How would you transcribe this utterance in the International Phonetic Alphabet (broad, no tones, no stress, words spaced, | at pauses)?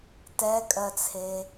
tɛkʼɜt͡sʰe